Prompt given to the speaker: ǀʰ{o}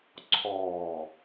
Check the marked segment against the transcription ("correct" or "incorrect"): incorrect